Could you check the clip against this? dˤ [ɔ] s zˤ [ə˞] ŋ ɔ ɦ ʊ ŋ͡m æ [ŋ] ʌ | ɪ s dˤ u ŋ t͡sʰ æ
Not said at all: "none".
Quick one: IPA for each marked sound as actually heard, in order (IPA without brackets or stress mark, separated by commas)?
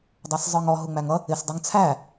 ɑ, ə˞, ŋ